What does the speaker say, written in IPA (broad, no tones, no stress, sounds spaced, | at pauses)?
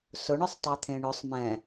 s ʊ ɳ ʊ sˤ tˤ œ t̪ʰ ẽ ɳ ʊ sˤ m ɛ̃